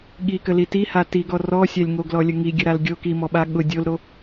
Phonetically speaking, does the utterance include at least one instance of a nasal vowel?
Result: no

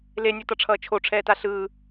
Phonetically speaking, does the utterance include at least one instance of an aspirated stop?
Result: yes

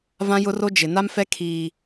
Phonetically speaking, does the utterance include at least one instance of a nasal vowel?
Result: yes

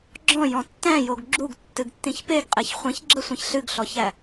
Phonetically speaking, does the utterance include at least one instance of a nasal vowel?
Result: yes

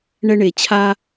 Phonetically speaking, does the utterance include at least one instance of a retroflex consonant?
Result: yes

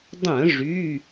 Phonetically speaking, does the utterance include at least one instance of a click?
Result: no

